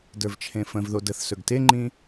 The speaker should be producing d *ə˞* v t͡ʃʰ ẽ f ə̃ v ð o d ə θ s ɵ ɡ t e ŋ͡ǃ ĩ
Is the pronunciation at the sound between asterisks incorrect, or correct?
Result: correct